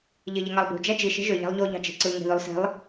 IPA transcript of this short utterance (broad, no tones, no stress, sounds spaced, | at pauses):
ʎ e ʎ e ŋ ɑ lˠ b ṳ d͡ʒ æ d͡ʒ i ʃ e̤ ʒ ø ʎ æ̤ lˠ ʎ o ʎ ɑ̤ d͡ʒ e̤ ǀ ɯ ŋ e̤ ð y lˠ s e̤ lˠ